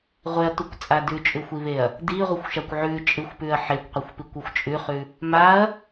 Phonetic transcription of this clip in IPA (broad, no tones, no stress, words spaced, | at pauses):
ʁʷeɐ̯tukʷt͡sʼa dʉt͡ʃʼʉxʷiβeɐ̯ | diʁʷɨxʷʃakʷ ʕʉ t͡ʃʼɨxʷpʉɐ̯ ħekʷqʷaxʷpikʷuxʷ t͡ʃʼʉχʉ | maɐ̯